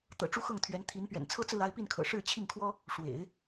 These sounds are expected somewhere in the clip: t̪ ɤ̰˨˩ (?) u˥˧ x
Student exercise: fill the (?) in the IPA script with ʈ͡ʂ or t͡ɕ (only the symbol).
ʈ͡ʂ